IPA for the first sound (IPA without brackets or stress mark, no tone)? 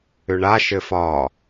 ʏ